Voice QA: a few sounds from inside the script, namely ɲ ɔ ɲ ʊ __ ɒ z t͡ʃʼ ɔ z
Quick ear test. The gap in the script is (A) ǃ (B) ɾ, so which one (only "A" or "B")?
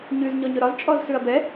B